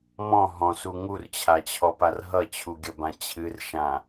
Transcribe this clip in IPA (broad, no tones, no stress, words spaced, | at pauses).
mɔ̃ ɦɔ̃su ŋurt͡ɕʰat͡ɕʰɔpar ɦʌt͡ɕʰuɡʲʌbã t͡ɕʰɨrʃã